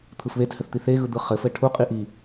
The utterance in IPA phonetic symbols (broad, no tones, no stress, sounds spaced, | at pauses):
t̪ʰ ɯ f β e t h ɘ θ t̪ i θ e ɣ ɯ d̪ ɯ χ ɘ f ɘ ʈʰ u qʼ i ʔ i